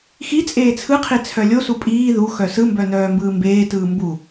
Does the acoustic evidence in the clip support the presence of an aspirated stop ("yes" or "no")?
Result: yes